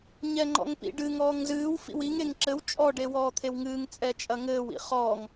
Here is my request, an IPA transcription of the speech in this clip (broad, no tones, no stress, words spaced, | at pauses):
ɲɛŋ͡ǃɔ̰ŋpḭɖɨ ŋɔːŋzɨːw fḭwiŋ eŋǁɘw t͡ʃʼɔ ɖewɔːt̪ʰewŋɨːŋ t͡sʼɛt͡ʃʼɐŋɘːw ḭχɔːŋ